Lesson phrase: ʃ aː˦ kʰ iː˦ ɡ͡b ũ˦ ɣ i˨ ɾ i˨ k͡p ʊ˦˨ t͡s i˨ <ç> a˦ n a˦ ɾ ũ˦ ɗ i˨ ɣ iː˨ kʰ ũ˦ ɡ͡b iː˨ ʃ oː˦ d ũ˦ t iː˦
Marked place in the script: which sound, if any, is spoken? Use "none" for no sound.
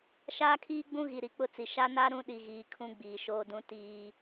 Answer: ʃ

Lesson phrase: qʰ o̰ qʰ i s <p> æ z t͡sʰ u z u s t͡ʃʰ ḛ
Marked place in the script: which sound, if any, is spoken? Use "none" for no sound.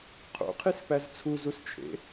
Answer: p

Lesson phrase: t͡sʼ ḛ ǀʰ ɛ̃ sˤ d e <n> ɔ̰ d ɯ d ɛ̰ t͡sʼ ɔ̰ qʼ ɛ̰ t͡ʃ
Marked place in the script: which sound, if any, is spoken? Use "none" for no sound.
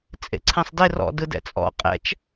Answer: r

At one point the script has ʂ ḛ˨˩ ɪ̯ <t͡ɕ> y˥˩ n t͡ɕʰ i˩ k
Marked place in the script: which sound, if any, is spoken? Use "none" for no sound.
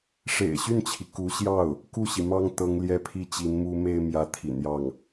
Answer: ɕ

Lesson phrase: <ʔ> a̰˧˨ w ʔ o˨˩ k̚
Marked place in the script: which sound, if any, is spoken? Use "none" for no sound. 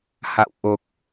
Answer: h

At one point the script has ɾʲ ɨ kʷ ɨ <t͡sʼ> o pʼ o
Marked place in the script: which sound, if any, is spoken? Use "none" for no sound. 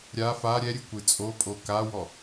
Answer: t͡sʼ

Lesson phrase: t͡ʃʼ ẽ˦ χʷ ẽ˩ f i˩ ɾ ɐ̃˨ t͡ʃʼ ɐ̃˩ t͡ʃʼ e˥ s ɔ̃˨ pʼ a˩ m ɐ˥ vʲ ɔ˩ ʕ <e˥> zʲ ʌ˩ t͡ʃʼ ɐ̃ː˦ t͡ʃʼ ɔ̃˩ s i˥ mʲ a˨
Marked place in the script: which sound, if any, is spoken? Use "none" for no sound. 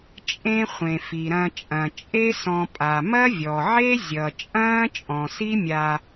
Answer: e˥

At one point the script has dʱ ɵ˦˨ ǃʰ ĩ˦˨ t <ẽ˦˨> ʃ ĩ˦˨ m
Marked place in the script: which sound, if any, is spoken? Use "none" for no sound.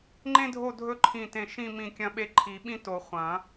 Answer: ẽ˦˨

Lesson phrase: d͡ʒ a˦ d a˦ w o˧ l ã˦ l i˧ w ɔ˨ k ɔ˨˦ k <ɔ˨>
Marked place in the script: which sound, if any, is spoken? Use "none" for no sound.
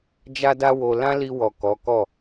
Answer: ɔ˦˨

